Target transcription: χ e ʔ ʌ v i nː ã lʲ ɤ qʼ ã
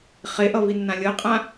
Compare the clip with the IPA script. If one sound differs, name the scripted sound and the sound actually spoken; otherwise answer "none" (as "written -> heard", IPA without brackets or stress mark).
none